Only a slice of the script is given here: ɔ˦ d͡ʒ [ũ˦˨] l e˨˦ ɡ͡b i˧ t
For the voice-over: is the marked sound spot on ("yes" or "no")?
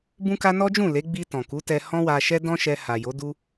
yes